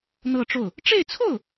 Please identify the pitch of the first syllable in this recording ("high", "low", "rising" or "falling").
falling